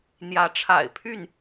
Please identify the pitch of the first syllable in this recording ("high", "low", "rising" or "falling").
rising